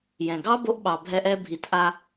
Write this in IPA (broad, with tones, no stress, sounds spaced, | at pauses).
j ɛ̃˨ ɡ ɑ˦ b o˧ ʔ ɓ ɑ˨ bʱ ɛ˧ ʔ ɛ˧ bʱ i˨˦ t ʔ a˧